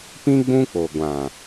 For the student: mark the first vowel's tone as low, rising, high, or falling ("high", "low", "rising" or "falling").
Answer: high